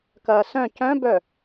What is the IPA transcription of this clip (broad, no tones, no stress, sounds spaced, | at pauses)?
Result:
k ɐː s œ̃ c œ̃ b œ